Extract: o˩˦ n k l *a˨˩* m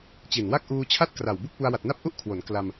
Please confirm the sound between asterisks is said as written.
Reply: no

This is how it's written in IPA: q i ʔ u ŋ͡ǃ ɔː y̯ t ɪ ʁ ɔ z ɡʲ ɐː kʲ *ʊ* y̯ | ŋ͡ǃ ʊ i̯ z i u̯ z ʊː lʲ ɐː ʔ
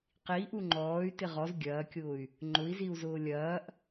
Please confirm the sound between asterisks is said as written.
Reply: no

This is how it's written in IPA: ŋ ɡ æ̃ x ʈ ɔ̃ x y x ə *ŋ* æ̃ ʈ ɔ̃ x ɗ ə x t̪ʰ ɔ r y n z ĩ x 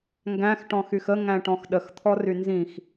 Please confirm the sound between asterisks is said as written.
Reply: yes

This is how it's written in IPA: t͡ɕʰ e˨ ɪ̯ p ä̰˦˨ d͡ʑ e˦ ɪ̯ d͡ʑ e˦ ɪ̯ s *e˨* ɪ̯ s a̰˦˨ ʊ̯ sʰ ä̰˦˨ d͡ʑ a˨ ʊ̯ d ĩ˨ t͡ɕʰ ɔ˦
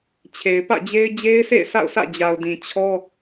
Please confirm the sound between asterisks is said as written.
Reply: no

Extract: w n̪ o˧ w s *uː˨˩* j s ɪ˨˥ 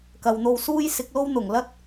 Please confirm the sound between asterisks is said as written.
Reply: no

